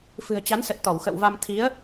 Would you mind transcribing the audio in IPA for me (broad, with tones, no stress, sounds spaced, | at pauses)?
f ɨ̤˨˩ ə̯ t͡ɕ a˨˦ n s ə˨˩ t̚ t̪ ɔ˧˩ w x ə̰˧˨ w v a˧ m t̪ʰ i˨˦ ə̯